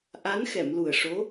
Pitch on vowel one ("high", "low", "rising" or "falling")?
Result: rising